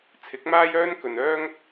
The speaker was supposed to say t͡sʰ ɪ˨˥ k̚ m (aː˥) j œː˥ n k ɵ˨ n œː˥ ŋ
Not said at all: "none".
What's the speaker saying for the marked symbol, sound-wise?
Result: aː˥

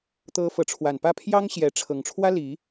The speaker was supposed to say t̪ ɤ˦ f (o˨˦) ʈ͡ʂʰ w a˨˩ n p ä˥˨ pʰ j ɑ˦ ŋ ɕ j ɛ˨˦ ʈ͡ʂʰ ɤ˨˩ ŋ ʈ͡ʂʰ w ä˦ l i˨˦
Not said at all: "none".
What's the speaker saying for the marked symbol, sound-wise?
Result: ɤ˨˦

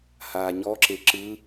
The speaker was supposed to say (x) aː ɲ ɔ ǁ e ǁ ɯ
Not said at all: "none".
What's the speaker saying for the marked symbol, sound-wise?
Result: h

